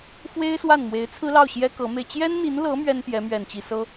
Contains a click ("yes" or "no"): no